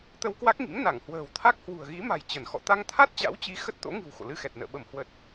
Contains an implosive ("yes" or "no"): yes